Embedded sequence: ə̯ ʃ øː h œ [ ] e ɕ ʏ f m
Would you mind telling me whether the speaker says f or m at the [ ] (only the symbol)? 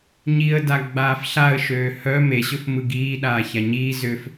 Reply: m